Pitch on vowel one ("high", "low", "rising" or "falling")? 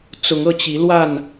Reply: rising